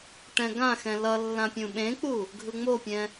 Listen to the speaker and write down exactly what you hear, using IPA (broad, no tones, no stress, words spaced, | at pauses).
ʈɛ̃ɡãxɛ̃ lʌ lːãpʲũɓẽk͡pu | ɡʱɯŋ͡mopʲɛ̃